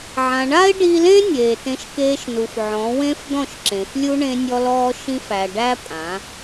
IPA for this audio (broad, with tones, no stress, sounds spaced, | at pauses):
ʕ ã˨ ɳ a˦ ɪ̯ ɖ i˧ l ẽ˦ nʲ eː˨ t ẽ˧ ʃ k eː˧ ʃ n u˨ f ʕ ɔ̃˨˦ w ẽ˦ f d̪ ɔ̃˦˨ ʃ ǁ ẽ˨ f lʲ u˦ ɳ ẽ˧ nʲ ɔ˧ l ɔː˧ ʃ ĩ˧ f æ˨ ɖ æ˦ pʼ ã˨˦